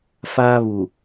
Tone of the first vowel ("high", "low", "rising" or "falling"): high